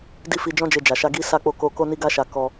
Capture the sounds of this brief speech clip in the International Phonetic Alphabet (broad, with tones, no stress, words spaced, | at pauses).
di˦fi˧d͡ʒɔ̃˦d͡ʒe˧ d͡ʒa˨ʃa˧ ɡi˦ sa˧k͡po˧ko˧ ko˦ni˦ɡa˦ʃa˧ kɔ˧